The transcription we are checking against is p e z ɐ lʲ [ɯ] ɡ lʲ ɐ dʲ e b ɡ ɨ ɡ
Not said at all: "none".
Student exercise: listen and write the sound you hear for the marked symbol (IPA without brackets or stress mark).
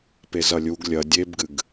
u